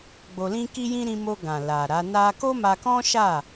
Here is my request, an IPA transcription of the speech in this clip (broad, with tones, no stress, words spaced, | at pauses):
ɡ͡bo˧lĩ˦ki˦jĩ˦ ɾĩ˧mo˧ ɡã˨ la˨ ɾa˨˦ na˦ ko˦ma˧kɔ̃˦ʃa˦˨